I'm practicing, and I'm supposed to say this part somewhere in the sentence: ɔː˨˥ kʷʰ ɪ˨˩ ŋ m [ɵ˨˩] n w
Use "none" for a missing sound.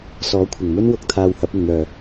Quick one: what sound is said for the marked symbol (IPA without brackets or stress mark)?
ɵ˥